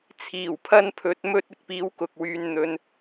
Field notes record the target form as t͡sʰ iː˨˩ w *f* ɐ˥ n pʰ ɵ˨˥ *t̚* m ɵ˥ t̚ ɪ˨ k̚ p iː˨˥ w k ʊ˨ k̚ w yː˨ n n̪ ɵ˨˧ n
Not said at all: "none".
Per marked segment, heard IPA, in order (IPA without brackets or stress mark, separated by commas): pʰ, t̚